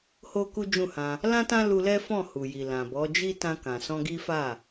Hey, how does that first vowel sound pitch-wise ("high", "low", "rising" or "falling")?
high